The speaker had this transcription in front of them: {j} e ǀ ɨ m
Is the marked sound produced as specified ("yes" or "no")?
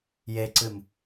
yes